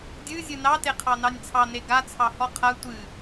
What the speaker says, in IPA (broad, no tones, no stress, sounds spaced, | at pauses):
dʲ ɨ zʲ ɨ n ɑ t e qʰ ɑ n ɑ nʲ t͡sʰ ɑ n e ɡ a t͡sʰ ɑ h ɔ qʰ a tʷ ɨ